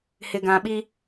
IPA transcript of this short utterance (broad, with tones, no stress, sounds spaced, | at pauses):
h ɪ˨ ɡ ã˨ ɓ i˦